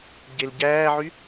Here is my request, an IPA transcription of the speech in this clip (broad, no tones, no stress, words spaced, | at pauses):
ɟelɟæːʕy